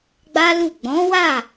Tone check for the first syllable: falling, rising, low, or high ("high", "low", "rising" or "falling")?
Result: high